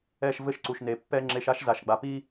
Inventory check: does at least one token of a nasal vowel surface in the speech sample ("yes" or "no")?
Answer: no